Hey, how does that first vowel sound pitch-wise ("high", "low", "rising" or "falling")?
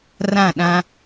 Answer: falling